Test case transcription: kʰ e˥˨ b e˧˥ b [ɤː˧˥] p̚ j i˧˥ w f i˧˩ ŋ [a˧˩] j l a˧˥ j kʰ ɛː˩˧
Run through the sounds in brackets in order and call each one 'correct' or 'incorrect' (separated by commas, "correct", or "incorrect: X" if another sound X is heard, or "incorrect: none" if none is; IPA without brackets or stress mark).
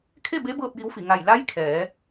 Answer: incorrect: ɤː˥˨, correct